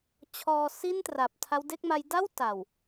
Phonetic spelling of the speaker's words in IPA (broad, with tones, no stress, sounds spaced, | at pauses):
t͡ɕʰ ɔː˧ s i˥˩ n t r a˨˩ p̚ tʰ a˦˥ w d e˥˩ k̚ m a˦˥ j d a˥˩ w t a˨˩ w